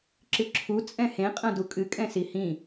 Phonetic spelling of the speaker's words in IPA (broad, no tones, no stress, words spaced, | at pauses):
ǁɨǁʰu t͡sʼɛ̃hẽ qʼɐ̃dukʼɨ kʼɛ̃sihĩ